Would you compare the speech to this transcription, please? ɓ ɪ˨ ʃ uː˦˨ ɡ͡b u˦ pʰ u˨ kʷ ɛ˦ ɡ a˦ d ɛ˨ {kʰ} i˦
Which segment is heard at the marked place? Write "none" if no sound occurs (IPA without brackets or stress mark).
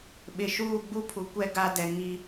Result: ŋ